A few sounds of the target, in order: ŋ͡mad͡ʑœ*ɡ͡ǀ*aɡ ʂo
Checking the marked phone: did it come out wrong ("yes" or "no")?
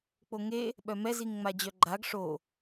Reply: yes